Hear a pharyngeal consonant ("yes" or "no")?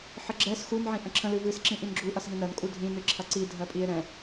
yes